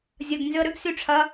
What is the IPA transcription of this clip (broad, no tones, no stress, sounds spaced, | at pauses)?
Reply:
zʲ ɐ ɡ n z ʏ ə̯ ɾ ʏ ɡ s y ʈ͡ʂʰ ɐ